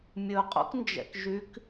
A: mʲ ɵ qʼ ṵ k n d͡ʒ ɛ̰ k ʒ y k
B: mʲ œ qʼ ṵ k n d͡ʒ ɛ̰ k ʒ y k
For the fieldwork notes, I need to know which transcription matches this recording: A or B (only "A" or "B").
A